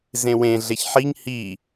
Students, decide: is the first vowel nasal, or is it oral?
nasal